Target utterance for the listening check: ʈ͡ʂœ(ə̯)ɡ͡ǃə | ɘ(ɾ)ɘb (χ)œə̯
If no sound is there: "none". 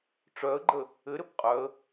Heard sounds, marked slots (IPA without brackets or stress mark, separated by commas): ə̯, ɾ, qʼ